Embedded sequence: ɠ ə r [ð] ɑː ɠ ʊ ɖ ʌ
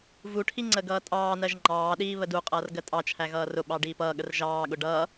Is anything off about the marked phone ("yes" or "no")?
yes